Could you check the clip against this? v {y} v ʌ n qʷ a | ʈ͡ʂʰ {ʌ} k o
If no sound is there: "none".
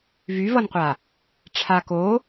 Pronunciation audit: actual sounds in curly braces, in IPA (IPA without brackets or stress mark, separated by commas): y, a